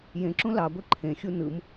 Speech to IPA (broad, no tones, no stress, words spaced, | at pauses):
jẽǁũ lɑɡʷe ǃʰẽxʲu nɯm